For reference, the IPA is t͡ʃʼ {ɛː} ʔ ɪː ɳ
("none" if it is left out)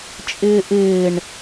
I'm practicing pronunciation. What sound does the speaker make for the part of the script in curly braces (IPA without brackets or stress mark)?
ɪː